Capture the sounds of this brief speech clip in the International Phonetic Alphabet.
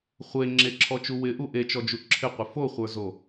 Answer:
χʷe ŋ͡ǁeǁʰɔt͡ʃu wɪʔu ʔet͡ʃɔd͡ʒu ǁʰɪqʷɪ foχʷə˞zo

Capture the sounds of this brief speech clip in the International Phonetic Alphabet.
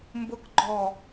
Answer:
mbʊkɡ͡ǃɔ

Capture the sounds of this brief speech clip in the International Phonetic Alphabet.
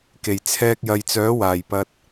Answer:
ke˨˩jt͡sʰɛː˧k̚jɐ˨jt͡sœː˨˥ waː˨˩j pɐ˧t̚

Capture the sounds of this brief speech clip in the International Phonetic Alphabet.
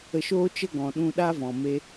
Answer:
ə˧ʃoː˦t͡ʃə˦ ɡɔ̃˨ɗũ˧ɗaː˦ vɔ̃˨me˧

